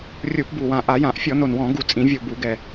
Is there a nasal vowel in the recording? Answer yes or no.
yes